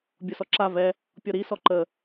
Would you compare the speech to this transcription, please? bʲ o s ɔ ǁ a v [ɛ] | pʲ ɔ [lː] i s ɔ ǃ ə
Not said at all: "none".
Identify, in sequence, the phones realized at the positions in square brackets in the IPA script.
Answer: ɛ, ɾ

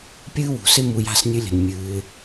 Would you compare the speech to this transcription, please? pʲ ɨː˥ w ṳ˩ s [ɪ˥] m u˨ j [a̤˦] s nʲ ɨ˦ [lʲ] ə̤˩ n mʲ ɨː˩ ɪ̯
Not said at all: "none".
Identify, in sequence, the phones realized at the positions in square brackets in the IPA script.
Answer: ɪ˥, a̤˦, lʲ

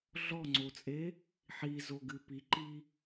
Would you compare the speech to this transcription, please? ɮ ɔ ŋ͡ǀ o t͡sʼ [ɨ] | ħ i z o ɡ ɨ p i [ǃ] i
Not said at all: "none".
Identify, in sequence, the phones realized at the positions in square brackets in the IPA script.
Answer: e, ǃ

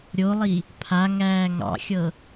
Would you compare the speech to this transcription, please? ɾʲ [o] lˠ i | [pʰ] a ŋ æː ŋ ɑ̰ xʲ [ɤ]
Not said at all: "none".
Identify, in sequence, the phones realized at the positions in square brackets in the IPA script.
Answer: o, pʰ, ɤ

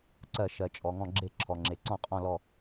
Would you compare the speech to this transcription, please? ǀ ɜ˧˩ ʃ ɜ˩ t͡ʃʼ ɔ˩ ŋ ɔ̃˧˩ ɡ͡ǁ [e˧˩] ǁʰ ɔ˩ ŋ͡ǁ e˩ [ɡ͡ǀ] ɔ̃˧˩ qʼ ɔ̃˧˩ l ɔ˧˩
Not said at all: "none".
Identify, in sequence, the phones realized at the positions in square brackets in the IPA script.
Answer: e˧˩, ǀ

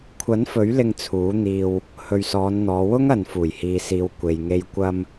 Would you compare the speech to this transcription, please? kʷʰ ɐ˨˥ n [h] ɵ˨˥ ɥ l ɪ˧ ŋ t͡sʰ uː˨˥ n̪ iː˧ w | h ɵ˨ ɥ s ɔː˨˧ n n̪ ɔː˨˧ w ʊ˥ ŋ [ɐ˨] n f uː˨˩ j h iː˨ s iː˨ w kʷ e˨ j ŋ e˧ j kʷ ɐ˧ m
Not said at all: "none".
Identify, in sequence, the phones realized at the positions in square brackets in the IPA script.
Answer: f, ɐ˨

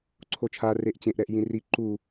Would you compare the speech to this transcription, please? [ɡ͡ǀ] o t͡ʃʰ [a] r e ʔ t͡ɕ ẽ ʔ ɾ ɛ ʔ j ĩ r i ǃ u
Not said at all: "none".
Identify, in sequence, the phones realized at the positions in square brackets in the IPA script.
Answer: ǀʰ, a

